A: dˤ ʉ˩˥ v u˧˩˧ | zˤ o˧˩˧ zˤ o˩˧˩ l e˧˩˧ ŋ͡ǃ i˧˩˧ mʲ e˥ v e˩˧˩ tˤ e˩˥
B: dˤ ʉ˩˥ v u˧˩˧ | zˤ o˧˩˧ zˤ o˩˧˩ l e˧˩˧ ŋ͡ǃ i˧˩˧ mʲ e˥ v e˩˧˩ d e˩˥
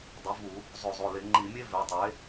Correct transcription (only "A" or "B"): A